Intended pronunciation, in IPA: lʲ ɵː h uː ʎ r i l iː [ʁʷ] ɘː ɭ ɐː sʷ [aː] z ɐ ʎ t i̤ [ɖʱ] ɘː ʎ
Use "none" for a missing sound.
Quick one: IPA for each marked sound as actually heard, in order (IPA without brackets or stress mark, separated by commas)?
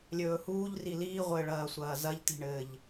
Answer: ʁʷ, ɐː, ɳ